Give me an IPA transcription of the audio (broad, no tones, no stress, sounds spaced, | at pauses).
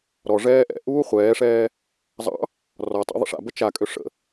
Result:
ɾ ɔ ʐ ɛː ʔ ɛ̰ ʔ uː χʷ ɛː ʂ ɛː | zˤ ɑ̰ | r ɔ tˤ ɑ̰ ðˤ ə̰ ʂ a̰ b ə t͡ʃ a kʼ ø ʂ ə̰